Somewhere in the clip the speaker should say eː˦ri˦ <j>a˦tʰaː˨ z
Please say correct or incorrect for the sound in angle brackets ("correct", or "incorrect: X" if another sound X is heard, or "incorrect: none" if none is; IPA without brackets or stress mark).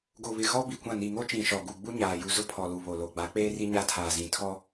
incorrect: ɲ